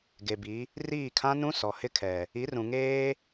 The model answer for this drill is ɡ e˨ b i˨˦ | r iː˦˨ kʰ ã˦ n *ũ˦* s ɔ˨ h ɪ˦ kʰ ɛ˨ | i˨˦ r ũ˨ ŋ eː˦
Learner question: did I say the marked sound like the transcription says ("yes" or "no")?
yes